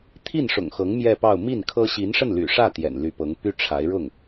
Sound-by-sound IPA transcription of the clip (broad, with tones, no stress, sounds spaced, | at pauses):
t̪ʰ i˥˩ n ʂ ʊ̰˨˩ ŋ x ɤ˧˥ ŋ m j ɛ˥˧ p ɑ˥˧ ʊ̯ m i˥˩ n kʰ ɤ˥ ɕ i˧˥ n ʂ ə˥˩ n l y̰˨˩ ʂ ä˥˩ t̪ j ɛ̰˨˩ n l y˧˥ p ɤ˧˥ ŋ p y˥ ʈ͡ʂʰ a˧˥ ɪ̯ ɻ ʊ˥˩ ŋ